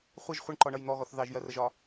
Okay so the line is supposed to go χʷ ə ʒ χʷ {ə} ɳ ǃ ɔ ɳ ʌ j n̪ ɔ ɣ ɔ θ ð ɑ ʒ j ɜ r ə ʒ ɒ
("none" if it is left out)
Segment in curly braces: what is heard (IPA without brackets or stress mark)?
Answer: ə